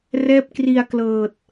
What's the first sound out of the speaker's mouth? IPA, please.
r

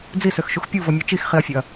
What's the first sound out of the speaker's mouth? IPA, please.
d͡z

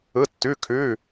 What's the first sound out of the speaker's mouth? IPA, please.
ɯ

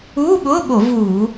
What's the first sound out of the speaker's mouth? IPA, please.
uː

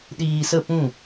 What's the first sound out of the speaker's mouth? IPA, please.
ɗ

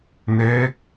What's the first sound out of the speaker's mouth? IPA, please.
n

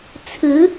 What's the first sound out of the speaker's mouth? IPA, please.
t͡sʰ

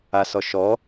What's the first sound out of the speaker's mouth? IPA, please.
a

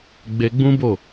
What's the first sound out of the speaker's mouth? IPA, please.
ɡ͡b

